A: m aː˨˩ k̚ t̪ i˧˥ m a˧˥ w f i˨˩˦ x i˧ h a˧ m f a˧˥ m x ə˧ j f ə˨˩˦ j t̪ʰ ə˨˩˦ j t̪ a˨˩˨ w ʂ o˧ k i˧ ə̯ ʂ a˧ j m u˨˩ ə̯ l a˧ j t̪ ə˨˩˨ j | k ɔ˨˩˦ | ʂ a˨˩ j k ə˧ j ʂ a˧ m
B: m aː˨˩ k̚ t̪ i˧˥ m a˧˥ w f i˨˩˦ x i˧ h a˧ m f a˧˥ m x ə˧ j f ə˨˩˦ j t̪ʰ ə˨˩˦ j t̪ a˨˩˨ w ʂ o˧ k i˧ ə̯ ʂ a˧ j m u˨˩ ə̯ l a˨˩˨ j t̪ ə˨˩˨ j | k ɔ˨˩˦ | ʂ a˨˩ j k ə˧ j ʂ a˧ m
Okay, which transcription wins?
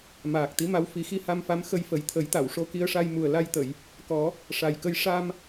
A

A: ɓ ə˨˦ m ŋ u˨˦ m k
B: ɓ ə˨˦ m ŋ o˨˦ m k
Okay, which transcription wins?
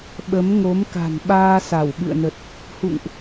B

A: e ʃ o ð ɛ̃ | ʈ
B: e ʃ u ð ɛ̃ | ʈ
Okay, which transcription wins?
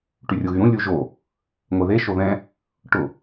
A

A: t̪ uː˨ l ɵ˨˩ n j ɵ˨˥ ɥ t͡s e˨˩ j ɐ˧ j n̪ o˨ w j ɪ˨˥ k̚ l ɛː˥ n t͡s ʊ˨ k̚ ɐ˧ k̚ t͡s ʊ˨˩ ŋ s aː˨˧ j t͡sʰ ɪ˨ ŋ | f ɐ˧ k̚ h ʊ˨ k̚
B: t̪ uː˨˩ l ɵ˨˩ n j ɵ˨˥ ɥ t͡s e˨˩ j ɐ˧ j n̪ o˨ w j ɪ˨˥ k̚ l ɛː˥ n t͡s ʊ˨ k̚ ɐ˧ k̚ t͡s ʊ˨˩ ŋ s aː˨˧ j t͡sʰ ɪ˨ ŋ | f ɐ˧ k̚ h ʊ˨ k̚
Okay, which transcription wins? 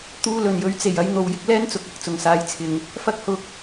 A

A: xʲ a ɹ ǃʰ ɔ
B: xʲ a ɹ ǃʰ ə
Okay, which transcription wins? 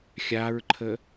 B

